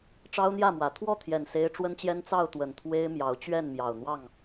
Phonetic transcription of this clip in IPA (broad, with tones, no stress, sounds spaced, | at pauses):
ʈ͡ʂ ɑ˦ ʊ̯ n̪ j ä˥˨ m w ä˨˦ t̪ʰ w ɔ˥˨ t̪ʰ j ɛ˨˩ n s e˦ ɪ̯ ʈ͡ʂ w ə˦ n t͡ɕ j ɛ˦ n t͡s ɑ˥˨ ʊ̯ t̪ w ə˨˩ n t̪ʰ w e˦ ɪ̯ m j ɑ˨˦ ʊ̯ t͡ɕ ɥ ɛ˥˨ n m j ɑ˨˩ ʊ̯ n̪ w ɑ˥˨ ŋ